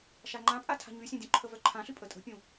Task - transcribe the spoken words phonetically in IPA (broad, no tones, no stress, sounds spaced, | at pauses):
ʃ a ŋ͡ǃ ã pʼ a tʰ a̤ ɲ y sʲ ɛ̃ dʲ ũ ǃʰ ə v œ ǃʰ ã ɬ y pʼ ə tʼ ə̤ pʲ ũ